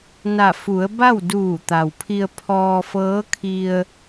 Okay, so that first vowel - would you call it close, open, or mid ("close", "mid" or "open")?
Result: open